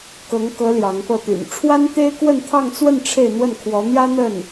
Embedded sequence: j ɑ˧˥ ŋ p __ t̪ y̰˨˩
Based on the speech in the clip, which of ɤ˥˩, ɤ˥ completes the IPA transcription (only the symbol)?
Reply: ɤ˥˩